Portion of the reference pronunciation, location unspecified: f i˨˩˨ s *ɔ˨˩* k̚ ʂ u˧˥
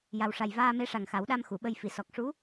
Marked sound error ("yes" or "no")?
no